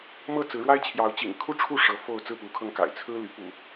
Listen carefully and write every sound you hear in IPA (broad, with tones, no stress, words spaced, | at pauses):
mɤ˥˨ t͡sɹ̩˨˦ɻwa˦ɪ̯t͡ɕʰjɑ˨˦ʊ̯ t͡ɕḭ˨˩ŋkʰu˥˨ʈ͡ʂʰu˥˨ ʂɤ˨˦fo˥˨ʊ̯ t͡sɹ̩˥˨pu˨˦kʰɤ˧ŋka̰˨˩ɪ̯ t͡sʰɹ̩˦ly˨˦ pṵ˨˩